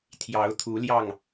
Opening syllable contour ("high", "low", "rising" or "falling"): rising